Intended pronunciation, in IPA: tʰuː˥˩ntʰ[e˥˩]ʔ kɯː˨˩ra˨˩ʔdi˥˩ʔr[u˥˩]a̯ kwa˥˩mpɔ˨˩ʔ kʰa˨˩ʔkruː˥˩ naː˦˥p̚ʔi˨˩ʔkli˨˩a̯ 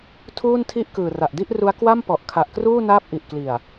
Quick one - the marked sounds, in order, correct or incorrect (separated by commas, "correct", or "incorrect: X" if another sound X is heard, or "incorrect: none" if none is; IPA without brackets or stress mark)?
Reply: incorrect: i˥˩, incorrect: u˦˥